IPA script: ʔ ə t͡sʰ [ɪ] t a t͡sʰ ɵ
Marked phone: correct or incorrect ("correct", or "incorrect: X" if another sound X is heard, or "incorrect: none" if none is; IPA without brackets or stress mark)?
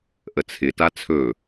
correct